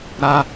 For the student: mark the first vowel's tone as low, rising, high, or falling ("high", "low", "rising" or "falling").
high